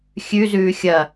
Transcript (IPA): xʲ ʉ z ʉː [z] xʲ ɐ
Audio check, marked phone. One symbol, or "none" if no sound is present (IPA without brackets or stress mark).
none